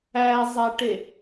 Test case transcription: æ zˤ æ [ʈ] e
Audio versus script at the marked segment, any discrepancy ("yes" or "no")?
no